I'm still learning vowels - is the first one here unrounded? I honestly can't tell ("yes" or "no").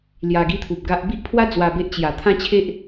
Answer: yes